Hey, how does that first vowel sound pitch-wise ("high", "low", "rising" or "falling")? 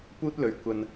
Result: high